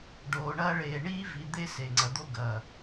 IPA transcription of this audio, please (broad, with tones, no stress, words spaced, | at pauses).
ɖoː˨ɳɐː˦ɭeː˨ ɳiː˦ vi˨ d̪e˦se˨ŋ͡ǀɐ˨ d̪o˦ɡɐ˨